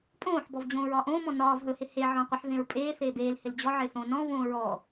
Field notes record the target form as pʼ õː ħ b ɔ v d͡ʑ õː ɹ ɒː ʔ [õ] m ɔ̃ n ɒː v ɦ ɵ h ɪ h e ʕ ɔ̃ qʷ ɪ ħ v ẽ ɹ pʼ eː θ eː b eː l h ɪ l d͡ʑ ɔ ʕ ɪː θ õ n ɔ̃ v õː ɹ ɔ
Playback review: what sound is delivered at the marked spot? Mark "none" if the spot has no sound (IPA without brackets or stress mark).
õː